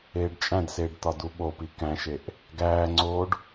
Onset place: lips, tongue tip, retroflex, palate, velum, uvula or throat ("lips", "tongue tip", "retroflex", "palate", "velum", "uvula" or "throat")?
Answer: retroflex